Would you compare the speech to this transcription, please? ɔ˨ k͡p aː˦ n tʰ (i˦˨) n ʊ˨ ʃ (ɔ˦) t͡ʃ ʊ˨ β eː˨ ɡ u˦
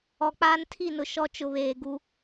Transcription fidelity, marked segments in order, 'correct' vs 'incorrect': correct, correct

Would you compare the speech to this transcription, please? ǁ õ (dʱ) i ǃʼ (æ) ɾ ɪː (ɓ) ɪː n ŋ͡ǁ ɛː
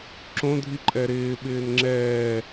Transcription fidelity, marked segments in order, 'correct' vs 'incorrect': correct, incorrect: ɛ, correct

